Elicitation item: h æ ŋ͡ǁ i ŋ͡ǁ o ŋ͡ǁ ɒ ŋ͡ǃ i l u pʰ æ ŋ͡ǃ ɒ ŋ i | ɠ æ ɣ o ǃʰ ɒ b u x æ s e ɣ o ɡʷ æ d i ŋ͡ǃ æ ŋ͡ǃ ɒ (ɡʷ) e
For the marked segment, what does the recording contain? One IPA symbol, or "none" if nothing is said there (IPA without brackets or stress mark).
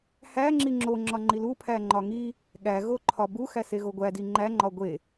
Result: ɡʷ